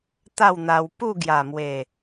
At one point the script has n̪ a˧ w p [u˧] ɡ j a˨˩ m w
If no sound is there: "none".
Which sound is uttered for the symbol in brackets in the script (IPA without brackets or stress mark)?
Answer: u˥˧